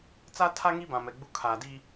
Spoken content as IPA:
t͡sa˦tʰa˦ ŋi˦bã˨mɛ˨ ɡ͡bu˨ kʰaː˨di˦

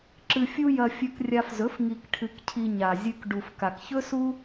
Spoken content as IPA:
ǁɨ˧fʲu˦jɐ˧ fʲɵ˧krʲa˧fzɵ˨˦f ŋi˧kʈʰɨ˧kcʰi˧ ɲa˨zʲɨ˧k ɖu˨fka˨kçɵ˦su˦

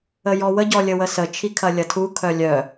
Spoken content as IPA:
əjɔwə ɟɔlʲəwəsə t͡ʃʰikʰɐlʲɐtʰu kʰœlʲœ

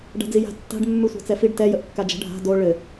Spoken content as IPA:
ɖa̤d͡zija̤ tːa̤ɖ mːʉsʷa̤t͡sɛfiɖ tɛ jəʔkːad͡ʒə̤ ɖʱa̤ do ɭɘ

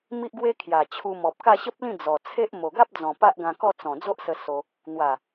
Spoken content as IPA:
mi˦ʔɡwe˦ kʰja˨˩ t͡ɕʰu˧mɔ˨p̚ ka˥˧ɕə˦p̚lĩ˥˧ d͡zɔ˨˩ t͡sʰe˦ʔ mo˨˩ɡa˦p̚d͡zɔ̃˨˩ pa˦ʔɡã˧kɔ˥˧ t͡sɔ̃˨˩ d͡zo˦ʔsə˧ so˧ | n̪wa˨˩

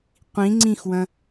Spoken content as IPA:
qʷĩ ŋ͡ǀĩxwɐ̃

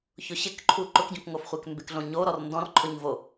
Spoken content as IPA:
çʊɕɪk ǃʰuǃʊkɟõkŋof χʷɛkmbɪkɮõɲo ɾɔrndɔ̃rǃʰʊɲvo

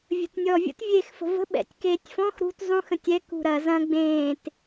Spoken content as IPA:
vʲə̤tnʲɔvʲə̰t vʲeːxfə̤və̤ ɓɛ̰tʲkeːtʲfɔ̃x ɾṳt zˤũx ə̃tʲɛ kṳɾɐ zɐ̃ ɡ͡bẽːt

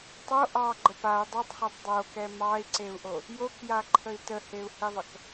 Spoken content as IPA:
tˤo ʔɑɡ͡ǃə pau̯ dˤotˤχetˤ dˤokɛ mɑi̯ǀeu̯ʔo | jokjaǃʰəi̯ təheu̯hiðˤək

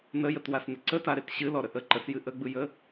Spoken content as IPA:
nəjətwasnə ǀətaɾet ɕɨlɔɾə ʔə ǃəsjɨ ʔəɡ͡bɯjə

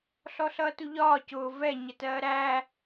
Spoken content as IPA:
ɬɔɬʌːtuʎɒː cʊː vɛ ɲətɜːɾæ

